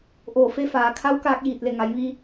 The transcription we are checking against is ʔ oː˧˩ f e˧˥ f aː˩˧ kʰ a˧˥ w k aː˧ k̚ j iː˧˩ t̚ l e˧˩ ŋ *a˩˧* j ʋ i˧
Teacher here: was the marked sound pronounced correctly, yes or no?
yes